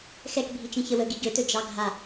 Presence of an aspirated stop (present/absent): absent